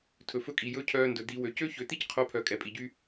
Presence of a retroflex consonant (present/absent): absent